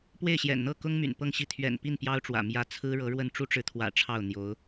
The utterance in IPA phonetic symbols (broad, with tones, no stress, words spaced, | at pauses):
pwe˥˩ɪ̯ɕjɛ̰˨˩nn̪ɤ˥˩kʊ˥ŋ my̰˨˩npɤ˥˧ŋɕi˥˩ t̪ʰɥɛ̰˨˩npi˥˩n pjɑ˥ʊ̯ʈ͡ʂwä̰˨˩ mjä˥˩ t͡sʰɹ̩˥ɻɤ˧˥ɻwə˥˩n ʈ͡ʂu˥ʈ͡ʂɻ̩˧˥t̪ʰwä̰˨˩ ʈ͡ʂʰɑ˥˩ʊ̯n̪jo˧˥ʊ̯